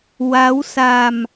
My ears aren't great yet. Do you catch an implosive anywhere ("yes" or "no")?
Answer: no